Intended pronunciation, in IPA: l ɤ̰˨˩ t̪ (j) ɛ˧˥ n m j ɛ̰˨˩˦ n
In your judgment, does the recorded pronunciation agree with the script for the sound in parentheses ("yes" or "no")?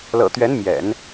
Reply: no